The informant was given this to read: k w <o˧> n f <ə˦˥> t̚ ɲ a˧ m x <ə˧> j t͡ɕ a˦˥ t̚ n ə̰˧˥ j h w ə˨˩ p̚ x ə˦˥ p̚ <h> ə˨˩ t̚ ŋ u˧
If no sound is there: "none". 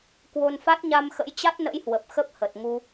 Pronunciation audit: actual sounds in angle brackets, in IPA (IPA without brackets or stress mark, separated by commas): o˧, a˦˥, ə̰˧˥, h